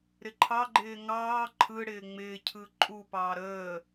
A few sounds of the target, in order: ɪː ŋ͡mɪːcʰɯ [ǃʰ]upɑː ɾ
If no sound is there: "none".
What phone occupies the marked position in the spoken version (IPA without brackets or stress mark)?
ǃʼ